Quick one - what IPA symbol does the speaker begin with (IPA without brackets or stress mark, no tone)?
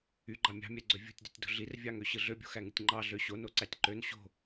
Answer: y